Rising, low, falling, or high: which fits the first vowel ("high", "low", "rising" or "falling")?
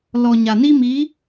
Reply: low